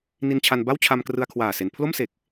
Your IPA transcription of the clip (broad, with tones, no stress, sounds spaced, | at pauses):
n i˧ n t͡ɕʰ a˧ n b a˥˩ w t͡ɕʰ a˧ m k r ɯ˧ a̯ kʰ w aː˨˩ s e˩˦ n pʰ l o˥˩ m s e˨˩ k̚